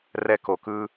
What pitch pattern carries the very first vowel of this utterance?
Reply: high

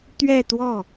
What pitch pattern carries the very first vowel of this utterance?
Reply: falling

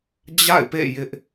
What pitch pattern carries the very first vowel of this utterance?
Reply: falling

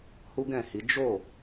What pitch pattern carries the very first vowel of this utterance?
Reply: high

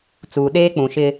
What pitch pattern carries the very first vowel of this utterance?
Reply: low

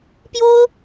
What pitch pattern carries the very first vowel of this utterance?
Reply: high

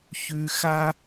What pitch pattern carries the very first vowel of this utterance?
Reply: low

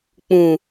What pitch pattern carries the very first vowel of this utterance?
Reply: low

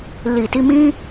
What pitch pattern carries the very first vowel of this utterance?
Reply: low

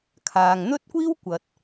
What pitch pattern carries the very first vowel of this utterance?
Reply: low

